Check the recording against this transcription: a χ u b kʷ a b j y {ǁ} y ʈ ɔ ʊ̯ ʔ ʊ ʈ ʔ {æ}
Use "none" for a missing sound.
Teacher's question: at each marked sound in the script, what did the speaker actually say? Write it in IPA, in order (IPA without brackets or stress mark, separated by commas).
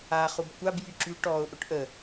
ǁ, ə